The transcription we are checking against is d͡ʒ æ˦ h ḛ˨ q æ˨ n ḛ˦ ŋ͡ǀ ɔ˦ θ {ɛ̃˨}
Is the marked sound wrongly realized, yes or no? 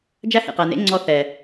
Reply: yes